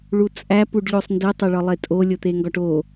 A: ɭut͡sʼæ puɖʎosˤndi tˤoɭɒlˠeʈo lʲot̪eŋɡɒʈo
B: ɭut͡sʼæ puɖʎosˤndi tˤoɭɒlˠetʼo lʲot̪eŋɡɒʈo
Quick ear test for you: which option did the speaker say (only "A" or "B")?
B